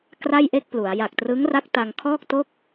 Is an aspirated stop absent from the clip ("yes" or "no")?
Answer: no